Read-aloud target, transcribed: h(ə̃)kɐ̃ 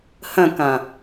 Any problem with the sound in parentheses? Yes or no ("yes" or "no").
no